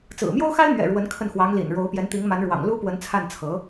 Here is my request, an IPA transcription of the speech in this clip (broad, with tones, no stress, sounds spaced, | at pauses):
t͡s ɹ̩˨˩ m j o˥ ʊ̯ x a˥ ɪ̯ m ɥ ɛ̰˨˩ ɻ w ə˧˥ n kʰ ə˥˩ n x w ɑ˧˥ ŋ l ḭ˨˩ n ɻ o˧˥ ʊ̯ p j ɛ˧˥ n t̪ i˧˥ ŋ m a˧˥ n ɻ w ɑ̰˨˩ ŋ l u˥ p w ə˧˥ n t͡sʰ a˥˩ n t͡sʰ ɤ˧˥